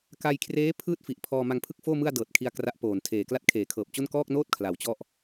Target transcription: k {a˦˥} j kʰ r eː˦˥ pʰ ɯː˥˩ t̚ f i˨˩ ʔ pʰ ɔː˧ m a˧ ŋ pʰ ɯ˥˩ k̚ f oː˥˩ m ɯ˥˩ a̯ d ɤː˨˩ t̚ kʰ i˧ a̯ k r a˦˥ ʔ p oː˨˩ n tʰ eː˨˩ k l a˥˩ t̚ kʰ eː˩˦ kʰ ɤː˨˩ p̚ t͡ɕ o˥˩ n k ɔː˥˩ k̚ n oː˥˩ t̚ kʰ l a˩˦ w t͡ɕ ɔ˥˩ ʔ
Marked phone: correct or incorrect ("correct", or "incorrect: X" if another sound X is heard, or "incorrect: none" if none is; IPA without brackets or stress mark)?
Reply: incorrect: a˧